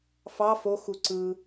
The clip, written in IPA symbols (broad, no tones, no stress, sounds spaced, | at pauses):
f ɑ f o x u ǀ ɯ